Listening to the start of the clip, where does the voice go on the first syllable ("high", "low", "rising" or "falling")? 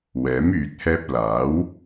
rising